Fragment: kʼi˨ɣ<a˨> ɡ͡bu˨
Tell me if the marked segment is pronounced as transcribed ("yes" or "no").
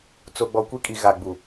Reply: yes